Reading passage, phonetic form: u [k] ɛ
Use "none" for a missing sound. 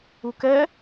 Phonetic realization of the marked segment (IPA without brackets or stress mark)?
k